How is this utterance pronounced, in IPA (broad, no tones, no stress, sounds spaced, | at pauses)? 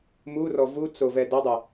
m u r ɔ v u t͡s o v ɛ d æ dˤ u